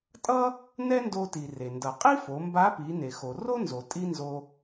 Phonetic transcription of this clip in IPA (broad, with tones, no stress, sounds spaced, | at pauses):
tʼ ʌ˥ | n ɛ˥ n d o˧ t i˩ r e˩ n d ʌ˩ qʼ i˥ f o˩˧ m b a˧˥ p i˩˧ n e˩ x o˩ r o˥ n z o˩ tʼ i˥ n z o˧